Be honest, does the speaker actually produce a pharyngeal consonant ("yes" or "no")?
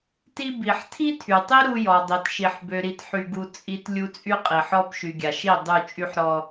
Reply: yes